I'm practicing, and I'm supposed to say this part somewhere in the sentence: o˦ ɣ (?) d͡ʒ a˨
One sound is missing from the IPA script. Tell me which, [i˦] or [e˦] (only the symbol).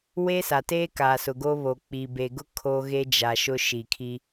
e˦